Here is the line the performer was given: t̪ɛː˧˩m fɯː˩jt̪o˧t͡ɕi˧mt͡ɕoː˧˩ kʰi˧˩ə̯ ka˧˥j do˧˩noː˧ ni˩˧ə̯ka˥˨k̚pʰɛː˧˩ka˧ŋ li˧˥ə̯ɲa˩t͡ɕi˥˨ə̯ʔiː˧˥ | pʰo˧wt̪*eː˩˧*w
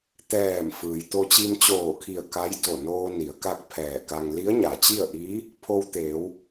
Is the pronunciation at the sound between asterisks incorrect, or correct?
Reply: correct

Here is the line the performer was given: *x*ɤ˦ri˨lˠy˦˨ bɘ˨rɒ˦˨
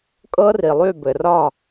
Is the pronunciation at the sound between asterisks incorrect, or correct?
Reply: incorrect: kʼ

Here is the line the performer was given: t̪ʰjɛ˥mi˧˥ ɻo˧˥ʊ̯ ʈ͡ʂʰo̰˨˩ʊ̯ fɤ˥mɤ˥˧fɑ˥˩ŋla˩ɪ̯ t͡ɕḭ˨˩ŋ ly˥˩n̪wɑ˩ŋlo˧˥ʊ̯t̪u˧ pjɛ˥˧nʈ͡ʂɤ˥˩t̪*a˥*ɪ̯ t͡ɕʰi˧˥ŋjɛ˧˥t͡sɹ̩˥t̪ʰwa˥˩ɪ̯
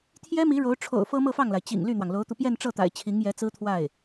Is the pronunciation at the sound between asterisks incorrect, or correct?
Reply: incorrect: a̰˨˩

